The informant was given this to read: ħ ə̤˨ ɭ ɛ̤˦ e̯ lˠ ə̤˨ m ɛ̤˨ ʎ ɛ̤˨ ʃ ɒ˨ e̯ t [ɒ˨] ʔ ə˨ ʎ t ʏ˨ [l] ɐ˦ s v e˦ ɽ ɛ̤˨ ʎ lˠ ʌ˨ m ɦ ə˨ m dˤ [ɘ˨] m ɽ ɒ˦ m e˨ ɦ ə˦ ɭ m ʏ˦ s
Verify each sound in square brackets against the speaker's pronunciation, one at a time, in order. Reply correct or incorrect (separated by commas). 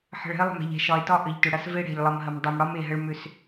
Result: incorrect, incorrect, incorrect